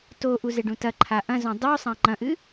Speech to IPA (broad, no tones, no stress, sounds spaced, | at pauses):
t o ʔ u z e ɖ ũ t ɐ ǃʰ a ʔ ɐ̃ z õ dˤ u sˤ ã ŋ͡ǃ ɐ̃ ʔ ɨ